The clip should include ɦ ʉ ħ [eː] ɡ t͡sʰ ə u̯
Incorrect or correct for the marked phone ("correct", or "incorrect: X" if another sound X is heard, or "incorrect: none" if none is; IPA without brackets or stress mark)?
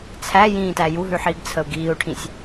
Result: incorrect: iː